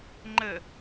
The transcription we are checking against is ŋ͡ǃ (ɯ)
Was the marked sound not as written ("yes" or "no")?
yes